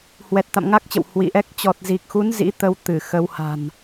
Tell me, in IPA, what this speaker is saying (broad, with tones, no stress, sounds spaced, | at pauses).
h w ɛ˨˩ t̚ t̪ a̰˧˨ m ŋ a˦˥ k̚ t͡ɕ ə̰˧˨ w h w ḭ˧˨ ʔ ɛ˦˥ k̚ t͡ɕ ɔ˨˩ t̚ z i˨˩ k̚ x u˨˦ n z ḭ˧˥ t̪ ə˧ w t̪ ɨ˧˩ x ə˧ w h a̤˨˩ n